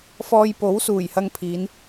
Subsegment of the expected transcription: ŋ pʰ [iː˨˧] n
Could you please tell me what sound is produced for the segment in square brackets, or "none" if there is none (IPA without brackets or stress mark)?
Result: iː˨˧